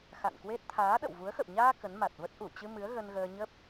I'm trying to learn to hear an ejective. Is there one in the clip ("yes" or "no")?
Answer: no